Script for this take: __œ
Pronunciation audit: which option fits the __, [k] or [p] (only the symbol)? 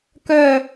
k